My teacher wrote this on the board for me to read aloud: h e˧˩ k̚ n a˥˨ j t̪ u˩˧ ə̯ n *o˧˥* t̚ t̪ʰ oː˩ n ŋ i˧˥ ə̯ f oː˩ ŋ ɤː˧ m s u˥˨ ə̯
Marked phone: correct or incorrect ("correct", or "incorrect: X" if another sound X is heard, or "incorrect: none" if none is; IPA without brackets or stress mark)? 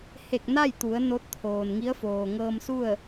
correct